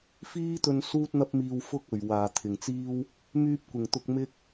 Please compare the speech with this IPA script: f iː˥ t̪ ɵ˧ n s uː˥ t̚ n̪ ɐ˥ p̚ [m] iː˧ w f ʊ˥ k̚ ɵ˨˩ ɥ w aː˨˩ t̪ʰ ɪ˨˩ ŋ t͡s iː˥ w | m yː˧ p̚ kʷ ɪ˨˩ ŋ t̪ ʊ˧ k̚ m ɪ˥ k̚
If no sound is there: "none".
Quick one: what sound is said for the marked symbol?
m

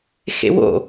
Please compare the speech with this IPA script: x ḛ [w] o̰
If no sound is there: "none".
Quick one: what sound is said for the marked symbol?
w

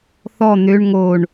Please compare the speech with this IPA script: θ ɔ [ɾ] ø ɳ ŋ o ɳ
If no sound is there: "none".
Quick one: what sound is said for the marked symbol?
n̪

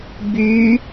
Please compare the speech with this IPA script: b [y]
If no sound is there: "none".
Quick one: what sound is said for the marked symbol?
y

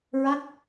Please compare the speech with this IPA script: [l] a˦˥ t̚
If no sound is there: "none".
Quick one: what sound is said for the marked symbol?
ɹ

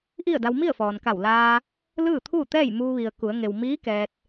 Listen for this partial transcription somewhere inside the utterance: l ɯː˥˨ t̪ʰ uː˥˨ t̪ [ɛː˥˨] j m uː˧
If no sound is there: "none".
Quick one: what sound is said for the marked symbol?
ɛː˥˨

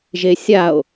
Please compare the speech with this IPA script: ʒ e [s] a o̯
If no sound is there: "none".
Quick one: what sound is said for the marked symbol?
sʲ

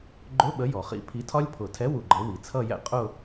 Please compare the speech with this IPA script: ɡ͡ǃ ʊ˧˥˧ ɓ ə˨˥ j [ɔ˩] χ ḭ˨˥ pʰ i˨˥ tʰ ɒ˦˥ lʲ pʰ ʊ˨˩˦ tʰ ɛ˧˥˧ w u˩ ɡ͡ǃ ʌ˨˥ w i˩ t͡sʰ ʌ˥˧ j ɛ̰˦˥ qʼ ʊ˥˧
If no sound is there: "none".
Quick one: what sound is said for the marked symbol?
ɔ˩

